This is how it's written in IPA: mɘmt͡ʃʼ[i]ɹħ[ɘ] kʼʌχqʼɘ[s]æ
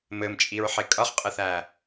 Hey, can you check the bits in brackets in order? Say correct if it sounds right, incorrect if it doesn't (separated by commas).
correct, incorrect, incorrect